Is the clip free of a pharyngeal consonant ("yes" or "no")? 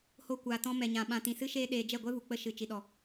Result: yes